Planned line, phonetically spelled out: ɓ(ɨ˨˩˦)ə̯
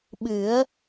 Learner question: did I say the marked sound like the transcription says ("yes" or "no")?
yes